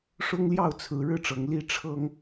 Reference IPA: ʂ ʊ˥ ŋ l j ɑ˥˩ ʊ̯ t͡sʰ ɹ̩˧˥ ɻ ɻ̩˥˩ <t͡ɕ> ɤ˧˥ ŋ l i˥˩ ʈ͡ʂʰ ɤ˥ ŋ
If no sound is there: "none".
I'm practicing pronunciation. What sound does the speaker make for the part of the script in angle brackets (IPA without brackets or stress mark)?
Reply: ʈ͡ʂ